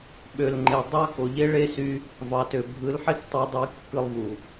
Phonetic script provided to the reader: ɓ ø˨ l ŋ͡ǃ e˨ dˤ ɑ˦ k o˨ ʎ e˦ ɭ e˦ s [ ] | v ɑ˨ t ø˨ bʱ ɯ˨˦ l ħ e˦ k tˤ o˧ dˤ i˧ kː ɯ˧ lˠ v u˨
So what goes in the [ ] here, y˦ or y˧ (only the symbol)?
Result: y˧